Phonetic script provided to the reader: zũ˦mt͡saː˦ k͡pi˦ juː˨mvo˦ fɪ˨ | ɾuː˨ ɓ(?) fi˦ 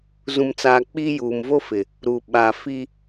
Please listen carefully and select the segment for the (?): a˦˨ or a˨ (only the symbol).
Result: a˨